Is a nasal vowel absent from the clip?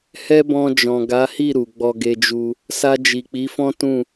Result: no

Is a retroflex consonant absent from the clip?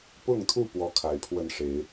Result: no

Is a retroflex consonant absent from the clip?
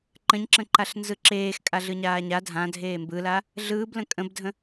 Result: yes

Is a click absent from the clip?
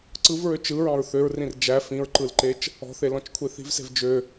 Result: no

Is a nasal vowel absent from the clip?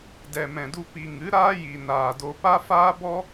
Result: no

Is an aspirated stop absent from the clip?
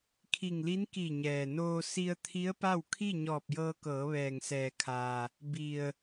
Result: no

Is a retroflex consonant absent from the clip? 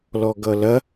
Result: yes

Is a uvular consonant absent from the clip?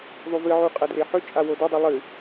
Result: no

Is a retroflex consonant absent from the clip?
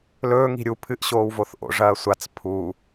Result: no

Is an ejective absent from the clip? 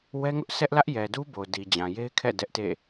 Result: yes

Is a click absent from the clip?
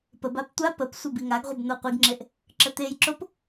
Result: no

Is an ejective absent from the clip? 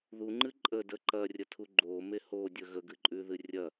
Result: no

